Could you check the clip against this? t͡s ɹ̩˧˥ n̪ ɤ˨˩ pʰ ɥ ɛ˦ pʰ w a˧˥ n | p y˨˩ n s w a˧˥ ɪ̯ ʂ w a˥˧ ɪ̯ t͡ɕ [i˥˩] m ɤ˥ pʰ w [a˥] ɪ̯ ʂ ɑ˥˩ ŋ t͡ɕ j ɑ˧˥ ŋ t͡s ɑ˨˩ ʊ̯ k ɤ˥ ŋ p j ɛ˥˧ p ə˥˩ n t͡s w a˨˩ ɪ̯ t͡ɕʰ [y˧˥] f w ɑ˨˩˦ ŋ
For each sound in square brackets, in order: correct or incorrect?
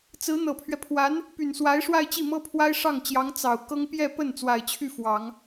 correct, correct, incorrect: y˥˩

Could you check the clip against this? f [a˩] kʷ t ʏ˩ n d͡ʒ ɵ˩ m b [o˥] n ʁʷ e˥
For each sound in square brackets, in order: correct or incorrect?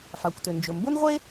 correct, correct

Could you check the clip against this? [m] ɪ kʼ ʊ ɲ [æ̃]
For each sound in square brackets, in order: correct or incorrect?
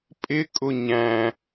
incorrect: pʼ, correct

